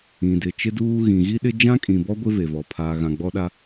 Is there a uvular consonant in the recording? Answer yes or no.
no